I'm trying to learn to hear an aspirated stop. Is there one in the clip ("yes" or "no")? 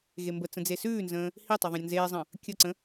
no